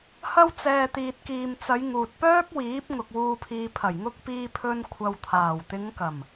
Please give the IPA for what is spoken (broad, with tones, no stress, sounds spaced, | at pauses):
h ɐ˧ w t͡s ɛː˨ t̪ iː˨ t̚ k iː˨ m t͡s ɐ˨˧ j ŋ uː˨ t̚ p œː˥ k̚ w iː˨˥ p̚ ŋ ʊ˨ k̚ w uː˨ pʰ iː˨ pʰ ɐ˨˩ j ŋ ʊ˧ k̚ p iː˧ pʰ ɵ˧ n kʷʰ ɐ˨ w t̪ʰ aː˨˩ w t̪ ɪ˨˧ ŋ k ɐ˨˩ m